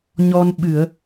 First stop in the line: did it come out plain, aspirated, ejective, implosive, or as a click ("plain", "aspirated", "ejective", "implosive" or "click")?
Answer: implosive